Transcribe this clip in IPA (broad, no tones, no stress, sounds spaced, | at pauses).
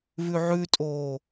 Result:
v ʉ ʕ ʉ tʼ oː